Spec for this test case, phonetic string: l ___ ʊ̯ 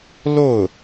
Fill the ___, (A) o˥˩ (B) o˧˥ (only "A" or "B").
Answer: A